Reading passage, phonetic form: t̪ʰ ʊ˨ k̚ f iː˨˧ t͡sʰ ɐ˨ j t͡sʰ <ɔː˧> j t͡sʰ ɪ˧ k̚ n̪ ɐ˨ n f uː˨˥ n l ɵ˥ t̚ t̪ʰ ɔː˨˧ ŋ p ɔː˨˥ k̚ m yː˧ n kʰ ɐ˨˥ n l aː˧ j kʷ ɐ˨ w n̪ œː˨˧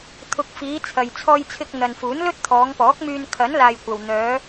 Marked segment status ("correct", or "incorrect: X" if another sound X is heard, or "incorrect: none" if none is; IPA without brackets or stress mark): correct